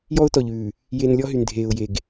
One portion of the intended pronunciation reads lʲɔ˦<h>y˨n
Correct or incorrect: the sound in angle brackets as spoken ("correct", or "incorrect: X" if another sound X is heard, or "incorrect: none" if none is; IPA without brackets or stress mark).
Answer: incorrect: ɦ